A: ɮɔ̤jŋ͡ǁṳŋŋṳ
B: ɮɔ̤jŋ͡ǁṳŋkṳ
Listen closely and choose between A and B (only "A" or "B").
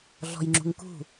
B